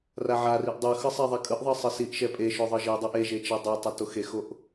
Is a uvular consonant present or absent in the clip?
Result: absent